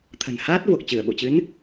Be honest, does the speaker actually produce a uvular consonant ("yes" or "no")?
no